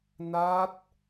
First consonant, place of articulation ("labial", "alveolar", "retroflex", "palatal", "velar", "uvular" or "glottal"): alveolar